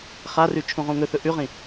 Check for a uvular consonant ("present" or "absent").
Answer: present